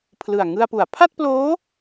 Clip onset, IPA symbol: pʰ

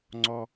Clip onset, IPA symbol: ŋ͡ǀ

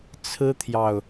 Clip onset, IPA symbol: t͡sʰ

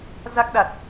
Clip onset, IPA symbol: z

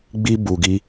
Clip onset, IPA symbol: ɡ͡b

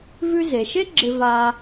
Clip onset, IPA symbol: v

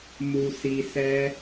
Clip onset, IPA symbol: m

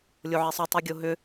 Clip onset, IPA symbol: lʲ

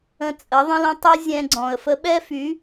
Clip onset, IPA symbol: ə̃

